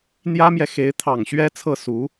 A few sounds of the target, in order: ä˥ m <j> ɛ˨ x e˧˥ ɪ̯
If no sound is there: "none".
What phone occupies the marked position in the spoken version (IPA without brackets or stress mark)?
j